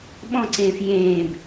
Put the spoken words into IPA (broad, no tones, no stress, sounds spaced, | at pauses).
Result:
ɓ ɔ̃ ǀ ẽː f j ẽː b